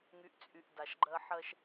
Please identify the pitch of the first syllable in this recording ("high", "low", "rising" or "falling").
low